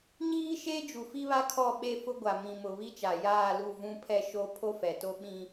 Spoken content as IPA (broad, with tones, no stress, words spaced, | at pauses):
ɲiː˦ʃeː˦ d͡ʒu˨fi˦βa˦ kʰɔ˦˨ɓe˦˨fʊ˦ɡʷa˨ mĩ˨mʊ˨ βi˦t͡ʃa˨ jaː˦˨lu˦˨ vũ˦pʰɛ˦ ʃo˦ pʰo˦fɛ˨to˦ ɓĩ˦